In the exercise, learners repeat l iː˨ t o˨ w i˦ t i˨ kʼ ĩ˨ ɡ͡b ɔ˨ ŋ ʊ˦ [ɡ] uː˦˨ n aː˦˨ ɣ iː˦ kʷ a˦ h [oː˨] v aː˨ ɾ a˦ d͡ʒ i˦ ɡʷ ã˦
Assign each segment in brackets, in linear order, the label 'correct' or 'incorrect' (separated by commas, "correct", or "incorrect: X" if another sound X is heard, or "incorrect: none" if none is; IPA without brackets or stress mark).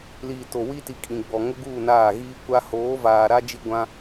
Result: correct, incorrect: oː˨˦